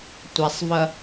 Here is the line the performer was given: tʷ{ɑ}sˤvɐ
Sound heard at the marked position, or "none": a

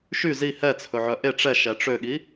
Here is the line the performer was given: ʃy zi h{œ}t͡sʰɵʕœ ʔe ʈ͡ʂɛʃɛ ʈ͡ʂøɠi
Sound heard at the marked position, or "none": ɛ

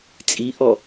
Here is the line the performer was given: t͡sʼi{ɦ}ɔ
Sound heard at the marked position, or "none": ʔ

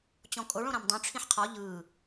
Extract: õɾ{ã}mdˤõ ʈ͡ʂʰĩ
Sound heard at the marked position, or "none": ã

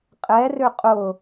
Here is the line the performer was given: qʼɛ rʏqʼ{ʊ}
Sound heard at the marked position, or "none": ʊ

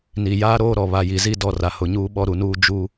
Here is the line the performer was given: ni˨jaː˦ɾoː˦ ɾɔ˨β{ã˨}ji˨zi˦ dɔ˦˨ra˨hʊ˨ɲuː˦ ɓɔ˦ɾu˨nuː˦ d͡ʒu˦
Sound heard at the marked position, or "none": a˨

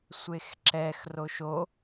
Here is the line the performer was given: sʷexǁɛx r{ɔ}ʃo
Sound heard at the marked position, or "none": o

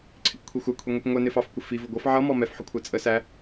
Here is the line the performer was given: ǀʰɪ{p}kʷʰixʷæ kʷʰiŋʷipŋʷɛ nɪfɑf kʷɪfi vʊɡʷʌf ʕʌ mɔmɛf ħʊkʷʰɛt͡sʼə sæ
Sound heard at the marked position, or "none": p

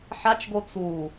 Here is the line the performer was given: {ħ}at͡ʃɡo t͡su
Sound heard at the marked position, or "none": ħ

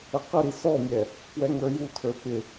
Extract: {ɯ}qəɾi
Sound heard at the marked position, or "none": ə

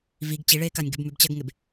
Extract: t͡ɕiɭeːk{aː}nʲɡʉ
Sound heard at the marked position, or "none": a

